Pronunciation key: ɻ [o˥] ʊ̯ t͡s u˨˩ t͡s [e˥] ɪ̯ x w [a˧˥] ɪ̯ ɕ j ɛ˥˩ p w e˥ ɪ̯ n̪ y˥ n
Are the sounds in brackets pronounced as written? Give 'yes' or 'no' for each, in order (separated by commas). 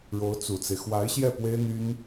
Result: no, no, yes